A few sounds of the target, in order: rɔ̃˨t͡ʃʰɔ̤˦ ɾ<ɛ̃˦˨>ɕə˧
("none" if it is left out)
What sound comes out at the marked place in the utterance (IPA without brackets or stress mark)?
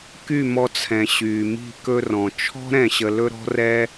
ɛ̃˦˨